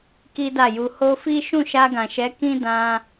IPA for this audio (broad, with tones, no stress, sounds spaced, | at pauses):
k i˦ d a˦˨ j u˧ h o˧ f i˦ ʃ ũ˦˨ ʃ a˧ ɡ ã˨ ʃ ɛ˨˦ k ĩ˦ d ã˧